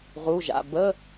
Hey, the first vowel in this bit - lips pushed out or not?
yes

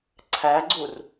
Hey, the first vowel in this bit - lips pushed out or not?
no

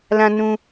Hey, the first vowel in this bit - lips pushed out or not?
no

